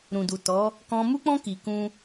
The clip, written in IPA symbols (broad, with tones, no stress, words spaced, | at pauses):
ɾũ˨du˨tɔ˨˦ | kɔ̃˧mu˦k͡pɔ̃˦ ki˧kũ˦